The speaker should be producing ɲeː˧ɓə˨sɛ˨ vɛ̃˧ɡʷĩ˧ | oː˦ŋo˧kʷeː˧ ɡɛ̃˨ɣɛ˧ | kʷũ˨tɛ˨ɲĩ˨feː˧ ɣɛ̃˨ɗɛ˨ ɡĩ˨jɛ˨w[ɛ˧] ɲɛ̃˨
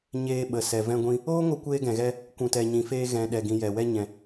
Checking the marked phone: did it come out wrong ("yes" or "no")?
no